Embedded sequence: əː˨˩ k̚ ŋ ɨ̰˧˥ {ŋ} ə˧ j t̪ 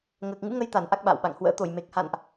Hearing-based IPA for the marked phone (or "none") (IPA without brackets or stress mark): ŋ